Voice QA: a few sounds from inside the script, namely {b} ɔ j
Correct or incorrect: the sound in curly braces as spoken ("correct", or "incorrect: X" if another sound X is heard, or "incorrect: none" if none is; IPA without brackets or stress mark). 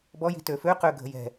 correct